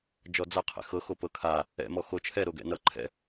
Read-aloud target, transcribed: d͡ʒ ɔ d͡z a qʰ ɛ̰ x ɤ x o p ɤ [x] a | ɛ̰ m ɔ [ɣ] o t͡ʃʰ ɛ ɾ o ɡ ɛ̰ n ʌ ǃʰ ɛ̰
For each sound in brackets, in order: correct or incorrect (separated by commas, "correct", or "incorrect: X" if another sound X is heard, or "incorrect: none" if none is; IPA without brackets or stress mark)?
incorrect: kʰ, incorrect: x